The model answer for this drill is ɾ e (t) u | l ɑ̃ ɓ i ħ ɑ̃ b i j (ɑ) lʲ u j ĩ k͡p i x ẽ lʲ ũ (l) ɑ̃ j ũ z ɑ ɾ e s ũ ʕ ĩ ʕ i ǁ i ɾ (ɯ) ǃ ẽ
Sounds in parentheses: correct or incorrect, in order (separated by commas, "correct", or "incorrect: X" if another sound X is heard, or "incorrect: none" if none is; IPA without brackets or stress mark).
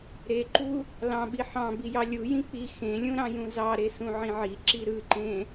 incorrect: ǃ, correct, incorrect: ɾ, correct